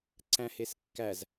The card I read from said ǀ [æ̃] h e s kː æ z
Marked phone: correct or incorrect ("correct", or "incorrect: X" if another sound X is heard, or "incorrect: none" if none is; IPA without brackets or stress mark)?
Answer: correct